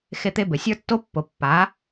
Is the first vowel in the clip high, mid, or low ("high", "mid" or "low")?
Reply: mid